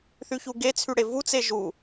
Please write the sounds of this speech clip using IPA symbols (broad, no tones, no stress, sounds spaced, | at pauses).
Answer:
θ y ç u ɡ e t͡sʰ y ɽ e v u t͡s e ʒ u